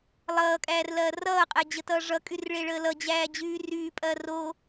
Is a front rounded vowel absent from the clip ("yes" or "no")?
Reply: no